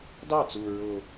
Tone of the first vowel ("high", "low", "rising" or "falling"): falling